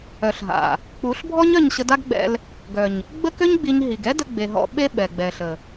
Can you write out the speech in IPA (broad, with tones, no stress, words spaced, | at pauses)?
œ˨ɬɦa̰˨ | k͡pu˨˦ɬbʱɔ˦ɲ œ˦˨ɲɕə˧da˦ɡɡ͡bɛ̰˧l | ɡœ˨ɲ | ɡ͡bə˦kø˦ɲɡ͡bi˧ɲ ɦi˨ɡ ɛ˦də˧ɡ͡be˨ ɦɔ̰˧ɓe˦ ɓɛ˨ɡ͡bɛ˨ɬə˨